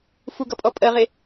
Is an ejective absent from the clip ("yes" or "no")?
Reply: no